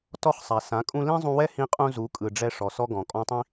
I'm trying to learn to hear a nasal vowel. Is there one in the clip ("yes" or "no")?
yes